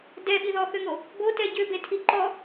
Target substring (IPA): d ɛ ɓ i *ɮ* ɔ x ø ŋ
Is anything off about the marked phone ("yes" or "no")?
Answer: yes